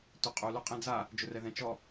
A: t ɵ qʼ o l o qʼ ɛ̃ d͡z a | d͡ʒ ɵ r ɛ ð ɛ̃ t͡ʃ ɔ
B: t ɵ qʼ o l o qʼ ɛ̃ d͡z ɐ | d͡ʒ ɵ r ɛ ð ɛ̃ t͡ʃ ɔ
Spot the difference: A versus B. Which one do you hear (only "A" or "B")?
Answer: A